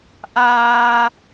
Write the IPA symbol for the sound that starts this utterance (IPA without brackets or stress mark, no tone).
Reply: ʔ